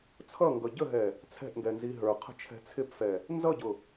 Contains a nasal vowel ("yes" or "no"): no